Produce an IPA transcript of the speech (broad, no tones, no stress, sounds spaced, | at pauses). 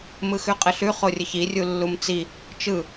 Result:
m ɯ x ʉ qʼ ɘ ɬ ʉ χ o rʲ ɘ ç i rʲ u lː u m t͡s i | t͡ʃ ɯ